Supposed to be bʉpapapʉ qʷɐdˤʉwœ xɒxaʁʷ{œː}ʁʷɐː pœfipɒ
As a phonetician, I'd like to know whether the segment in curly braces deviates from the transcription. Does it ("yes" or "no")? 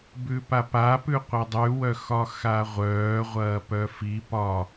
no